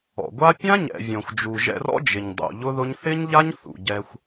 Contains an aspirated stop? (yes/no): no